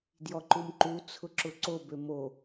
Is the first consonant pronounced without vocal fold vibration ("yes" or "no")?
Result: no